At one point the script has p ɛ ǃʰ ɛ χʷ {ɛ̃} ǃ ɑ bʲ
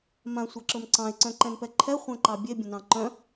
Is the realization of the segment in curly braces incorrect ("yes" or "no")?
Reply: no